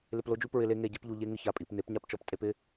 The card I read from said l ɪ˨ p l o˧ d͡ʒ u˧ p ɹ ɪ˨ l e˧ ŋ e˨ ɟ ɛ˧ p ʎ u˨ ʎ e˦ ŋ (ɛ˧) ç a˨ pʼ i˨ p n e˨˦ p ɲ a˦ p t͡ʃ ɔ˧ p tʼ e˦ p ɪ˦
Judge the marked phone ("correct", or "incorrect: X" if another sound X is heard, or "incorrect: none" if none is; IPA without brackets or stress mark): incorrect: ɪ˧